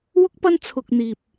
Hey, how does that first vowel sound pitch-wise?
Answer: high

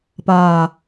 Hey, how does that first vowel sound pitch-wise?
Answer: low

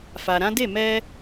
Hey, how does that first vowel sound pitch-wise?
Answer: low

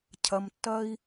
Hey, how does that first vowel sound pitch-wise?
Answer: low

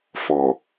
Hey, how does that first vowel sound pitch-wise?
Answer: low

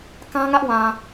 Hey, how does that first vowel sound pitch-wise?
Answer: high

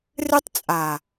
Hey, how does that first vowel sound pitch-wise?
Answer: high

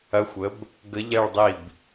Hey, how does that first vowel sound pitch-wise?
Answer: rising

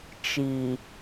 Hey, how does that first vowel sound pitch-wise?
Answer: low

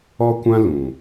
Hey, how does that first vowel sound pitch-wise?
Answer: high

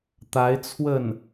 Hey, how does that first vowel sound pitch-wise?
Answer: rising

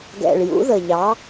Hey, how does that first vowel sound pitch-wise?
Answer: low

